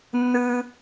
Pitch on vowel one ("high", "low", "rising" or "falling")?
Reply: high